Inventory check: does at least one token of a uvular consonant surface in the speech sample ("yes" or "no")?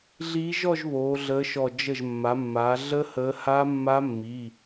no